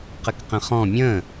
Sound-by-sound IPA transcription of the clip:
q ə k q ə̃ χ ɔ̃ mʲ ə̃ː

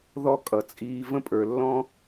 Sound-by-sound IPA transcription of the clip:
ð ɔ˦ kʼ ʌ˨ t͡sʼ iː˧ v ə̃˦ pʼ ə˞˨ lː ɔ̃˦

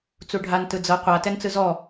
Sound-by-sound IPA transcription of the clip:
t͡s u ɖʱ a n t ɯ d͡z ɤ qʷ a t ɛ n t͡s ɯ z ɔ

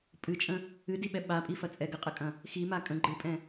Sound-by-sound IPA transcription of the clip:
pʼ ɨ t͡ʃʼ ə̃ | ɨ d i ɓ ɛ ɓ a pʼ i f ɐ t͡sʼ ɛ ɡ ə qʼ ə kʼ ɐ̃ | x i m a kʼ ə̃ ɡ͡ǃ ɨ pʼ ɛ̃

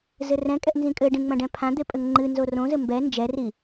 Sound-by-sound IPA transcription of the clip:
z ɘ r ɛ̃ kʼ ɛ ʔ n z ĩ kʼ ɘ ɖ ĩ ŋ͡m ɐ̃ ɖ ɛ̃ pʰ ã d̪ e pʼ ɘ ŋ ŋ͡ǃ ɨ n z o r õ z ɘ m b ɛ n d͡ʒ ɛ r i

